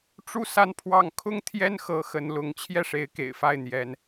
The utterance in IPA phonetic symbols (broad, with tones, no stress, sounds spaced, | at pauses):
ʈ͡ʂ u˥˧ s a˥˧ n pʰ w ɑ˥˩ ŋ kʰ ʊ˥ ŋ t̪ʰ j ɛ˥ n x ɤ˧˥ x ə˧˥ n l ʊ˧˥ ŋ t͡ɕʰ j ɛ˥˩ ʂ e˧˥ ɪ̯ k ḛ˨˩ ɪ̯ f a˥˩ ɪ̯ n̪ j ɛ˥ n